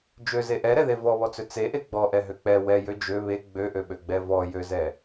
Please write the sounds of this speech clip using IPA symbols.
d͡ʒøze ʔɛɾɛðe vɔβɔt͡sø t͡seʔe ɡ͡bɔʔɛɦø k͡pɛ wɛjø d͡ʒø βe ɡ͡bøʔøɓøɡ͡bɛ vɔjøzɛ

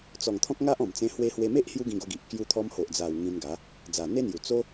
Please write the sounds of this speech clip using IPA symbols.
t͡sɔ˨˩ŋt̪ʰɔ̃˦k̚ ŋa˦ʔɔ̃˨˩mt͡sẽ˧ hwe˧hwe˧me˦ʔ hju˦ɡĩ˧ɡo˧ɡi˨ʔ kju˧t̪ʰɔ˧m ho˨ʔd͡za˨˩w ŋĩ˧nɡa˨˦ | d͡za˨˩n̪e˦n̪ju˨˩ t͡so˦

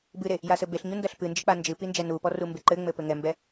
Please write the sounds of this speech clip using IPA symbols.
bɨɾe | jasɘbeɬ ɲundɐɬpɨ nd͡ʒɨk͡pand͡ʒɨ pind͡ʒɛnupɔ rumbeǃɘŋ͡mɘ pɘŋɛmbɛ

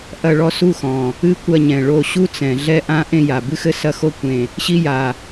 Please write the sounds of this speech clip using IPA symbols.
ʔɐ˦˨ɭɔ˦su˦˨xɔ̃˨˩ | ɨ˦kʷɐ˦˨ɲɛ̃˨˩ ɭo˦˨ ɕu˦t͡sɛ̃˨˩ ɮɛ˦ʔã˦ ʔẽ˦˨ja˨˩bɨ˦xɘ˦ sɐ˦˨xo˦˨kʷẽ˨˩ | ɕi˦ja˨˩

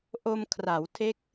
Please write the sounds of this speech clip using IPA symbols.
ʔo˧mkʰra˩˦wtʰe˦˥k̚

